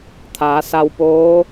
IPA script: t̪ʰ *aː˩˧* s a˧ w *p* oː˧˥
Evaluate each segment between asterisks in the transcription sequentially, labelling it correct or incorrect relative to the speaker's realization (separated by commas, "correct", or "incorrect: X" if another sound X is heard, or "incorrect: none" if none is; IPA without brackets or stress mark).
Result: correct, correct